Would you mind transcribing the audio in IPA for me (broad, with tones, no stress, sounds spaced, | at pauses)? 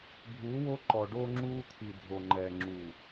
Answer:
bʱ uː˨˦ w o˦ ǃ ɔ˨ ɖ o˦ ŋ͡ǁ uː˦ t̪ʰ i˨ dʱ o˨ ŋ͡ǃ ɛː˨ ŋ͡ǁ uː˨